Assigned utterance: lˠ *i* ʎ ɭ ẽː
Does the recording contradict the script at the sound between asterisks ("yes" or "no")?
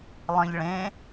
yes